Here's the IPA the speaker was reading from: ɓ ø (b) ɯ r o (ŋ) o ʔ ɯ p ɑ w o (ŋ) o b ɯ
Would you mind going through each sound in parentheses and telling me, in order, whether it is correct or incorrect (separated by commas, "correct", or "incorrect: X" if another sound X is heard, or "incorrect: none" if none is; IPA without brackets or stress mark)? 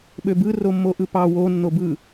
correct, incorrect: mː, incorrect: nː